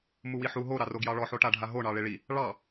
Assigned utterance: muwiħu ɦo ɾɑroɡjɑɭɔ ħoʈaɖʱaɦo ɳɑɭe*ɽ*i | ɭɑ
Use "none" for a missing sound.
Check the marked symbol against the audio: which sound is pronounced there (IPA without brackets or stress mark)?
ɭ